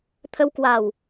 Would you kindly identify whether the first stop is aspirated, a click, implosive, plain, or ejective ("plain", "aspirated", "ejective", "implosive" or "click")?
aspirated